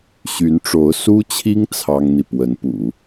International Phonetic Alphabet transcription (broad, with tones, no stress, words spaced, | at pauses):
ɕy˧˥nʈ͡ʂo˧˥ʊ̯ su˥t͡ɕʰi˥ŋ t͡sʰɑ˥ŋn̪i˨ pwə˧˥npṵ˨˩˦